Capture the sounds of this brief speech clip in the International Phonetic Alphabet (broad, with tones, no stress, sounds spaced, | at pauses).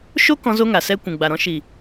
ʃ o˦ k ɔ̃˦ z o˦ ŋ a˨ s ɛ˦ kʷ ũ˨ ɡ͡b a˨ ɾ ɔ̃˧ ʃ i˨